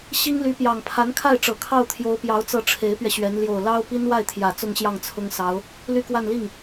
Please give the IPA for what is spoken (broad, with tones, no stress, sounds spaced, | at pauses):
ɕ i˥ ŋ l y˧˥ p j ɑ˨˩ ŋ pʰ a˧˥ n kʰ a˥˩ ɪ̯ ʈ͡ʂ ɤ˨˩ kʰ ɑ˥˩ ʊ̯ t̪ʰ j o˧˥ ʊ̯ p j ɑ˧˥ ʊ̯ t͡s ɤ˥˩ ʈ͡ʂʰ e˧˥ ɪ̯ p ɥ ɛ˧ ɕ ɥ ɛ˧˥ n l j o˨˩ ʊ̯ l ɑ˥ ʊ̯ p i˥ n w a˥˩ ɪ̯ t̪ʰ j ä˨˩ t͡s ʊ˥˧ ŋ ɕ j ɑ˥˩ ŋ t͡sʰ ʊ˥ ŋ s ɑ˧˥ ʊ̯ | l y˥˧ k w a˥˧ n l i˥˩ ŋ